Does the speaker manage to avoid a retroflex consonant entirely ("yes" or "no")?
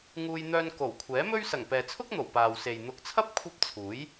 yes